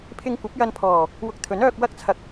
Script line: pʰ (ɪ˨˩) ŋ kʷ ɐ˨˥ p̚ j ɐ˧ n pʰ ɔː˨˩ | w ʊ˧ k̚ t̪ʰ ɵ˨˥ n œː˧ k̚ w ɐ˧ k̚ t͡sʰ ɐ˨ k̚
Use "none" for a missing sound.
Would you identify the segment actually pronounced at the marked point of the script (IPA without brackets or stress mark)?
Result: ɪ˧